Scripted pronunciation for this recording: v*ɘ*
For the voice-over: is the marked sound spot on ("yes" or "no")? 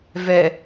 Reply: no